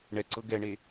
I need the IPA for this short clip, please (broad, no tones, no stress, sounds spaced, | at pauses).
ɳ ɛ ǀ ɤ ɡ ɛ ɳ e